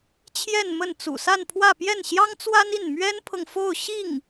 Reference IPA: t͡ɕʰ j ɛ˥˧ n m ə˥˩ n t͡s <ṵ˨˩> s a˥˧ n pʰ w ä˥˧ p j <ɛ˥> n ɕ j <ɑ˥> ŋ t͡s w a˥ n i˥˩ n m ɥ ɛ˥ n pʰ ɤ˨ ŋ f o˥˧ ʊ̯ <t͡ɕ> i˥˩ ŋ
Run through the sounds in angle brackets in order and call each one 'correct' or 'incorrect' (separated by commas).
correct, incorrect, correct, incorrect